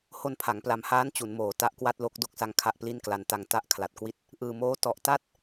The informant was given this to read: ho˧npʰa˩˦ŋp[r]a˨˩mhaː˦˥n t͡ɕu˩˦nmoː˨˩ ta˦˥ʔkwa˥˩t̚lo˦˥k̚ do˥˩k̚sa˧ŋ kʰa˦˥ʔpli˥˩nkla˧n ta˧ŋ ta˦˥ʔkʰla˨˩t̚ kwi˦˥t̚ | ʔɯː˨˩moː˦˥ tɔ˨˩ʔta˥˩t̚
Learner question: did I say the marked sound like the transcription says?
no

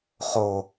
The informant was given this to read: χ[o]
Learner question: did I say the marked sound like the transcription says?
yes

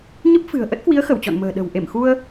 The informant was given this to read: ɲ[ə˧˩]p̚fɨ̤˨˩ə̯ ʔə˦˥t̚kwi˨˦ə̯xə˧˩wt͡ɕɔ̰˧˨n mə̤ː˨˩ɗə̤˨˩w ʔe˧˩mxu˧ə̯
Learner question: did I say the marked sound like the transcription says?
no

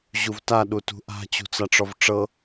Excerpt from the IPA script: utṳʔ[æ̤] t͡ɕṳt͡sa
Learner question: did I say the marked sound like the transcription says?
no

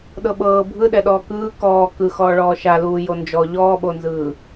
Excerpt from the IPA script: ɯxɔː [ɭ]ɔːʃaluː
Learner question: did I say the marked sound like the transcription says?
yes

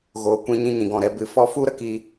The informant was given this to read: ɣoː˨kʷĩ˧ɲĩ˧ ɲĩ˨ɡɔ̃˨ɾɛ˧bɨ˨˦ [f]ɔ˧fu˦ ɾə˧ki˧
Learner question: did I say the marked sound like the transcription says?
yes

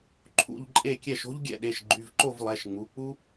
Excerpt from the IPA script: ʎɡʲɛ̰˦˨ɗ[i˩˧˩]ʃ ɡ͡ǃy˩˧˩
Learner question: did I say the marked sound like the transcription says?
no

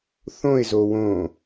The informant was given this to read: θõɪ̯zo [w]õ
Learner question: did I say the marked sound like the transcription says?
yes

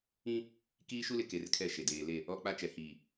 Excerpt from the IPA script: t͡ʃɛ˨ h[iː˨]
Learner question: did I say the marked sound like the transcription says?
yes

